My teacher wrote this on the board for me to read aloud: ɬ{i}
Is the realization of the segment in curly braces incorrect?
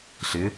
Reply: yes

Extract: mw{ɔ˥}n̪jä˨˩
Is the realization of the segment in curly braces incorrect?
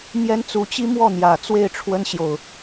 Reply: yes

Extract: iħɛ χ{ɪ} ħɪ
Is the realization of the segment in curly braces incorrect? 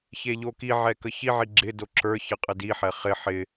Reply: no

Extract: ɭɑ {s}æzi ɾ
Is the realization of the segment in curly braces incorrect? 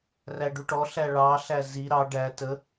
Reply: yes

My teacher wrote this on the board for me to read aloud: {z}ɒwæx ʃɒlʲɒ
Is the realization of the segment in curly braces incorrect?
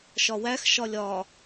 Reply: yes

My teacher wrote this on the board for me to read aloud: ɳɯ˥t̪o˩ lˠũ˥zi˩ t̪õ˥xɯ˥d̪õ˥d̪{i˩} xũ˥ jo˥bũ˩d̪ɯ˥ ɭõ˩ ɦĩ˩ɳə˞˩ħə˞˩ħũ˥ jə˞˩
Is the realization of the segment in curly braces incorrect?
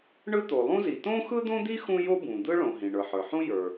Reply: yes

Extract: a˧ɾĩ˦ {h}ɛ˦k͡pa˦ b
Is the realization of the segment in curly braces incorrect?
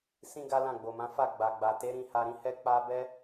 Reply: no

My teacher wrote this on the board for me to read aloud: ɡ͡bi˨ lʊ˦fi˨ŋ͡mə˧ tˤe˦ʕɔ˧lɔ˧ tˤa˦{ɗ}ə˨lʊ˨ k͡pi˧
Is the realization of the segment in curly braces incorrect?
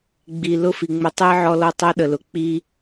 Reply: no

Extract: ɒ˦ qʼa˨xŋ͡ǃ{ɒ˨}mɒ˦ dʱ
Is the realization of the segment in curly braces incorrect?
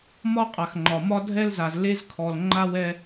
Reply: no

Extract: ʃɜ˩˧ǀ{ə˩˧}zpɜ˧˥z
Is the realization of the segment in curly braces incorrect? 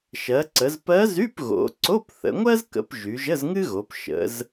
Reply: no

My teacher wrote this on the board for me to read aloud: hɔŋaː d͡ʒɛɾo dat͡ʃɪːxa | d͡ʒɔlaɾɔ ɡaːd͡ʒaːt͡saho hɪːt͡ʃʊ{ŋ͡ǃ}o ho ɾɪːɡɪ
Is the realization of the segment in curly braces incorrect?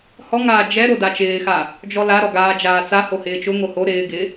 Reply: yes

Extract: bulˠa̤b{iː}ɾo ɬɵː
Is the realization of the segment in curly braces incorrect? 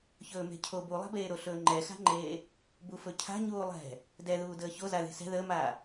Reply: yes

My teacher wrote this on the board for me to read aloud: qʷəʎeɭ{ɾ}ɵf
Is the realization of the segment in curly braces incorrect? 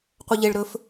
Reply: no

